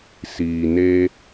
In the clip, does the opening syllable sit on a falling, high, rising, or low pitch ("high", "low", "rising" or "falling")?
low